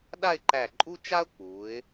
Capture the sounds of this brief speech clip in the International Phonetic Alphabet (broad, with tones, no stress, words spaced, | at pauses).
ɗa˥˧ɪ̯ǃæ˧˩ǃʼu˥t͡ʃa˥ʊ̯ k͡pu˩˧ɪ̯